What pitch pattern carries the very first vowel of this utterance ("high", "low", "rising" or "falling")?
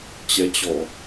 rising